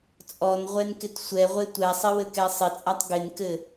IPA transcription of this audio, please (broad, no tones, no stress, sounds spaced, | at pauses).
t͡sʼ ɔ n ʁʷ ɛ n k ɪ t sʷ ɛ ʁʷ e tʷ ɛ sˤ ɪ w ɘ k ɛ sˤ ɪ t͡sʼ a tˤ ɡ ɪ n k ɘ